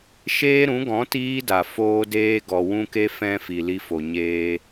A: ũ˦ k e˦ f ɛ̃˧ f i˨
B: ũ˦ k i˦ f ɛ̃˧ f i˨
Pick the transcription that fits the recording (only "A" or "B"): A